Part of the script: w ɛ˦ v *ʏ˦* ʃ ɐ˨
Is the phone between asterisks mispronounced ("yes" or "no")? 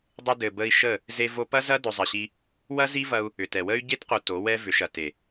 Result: yes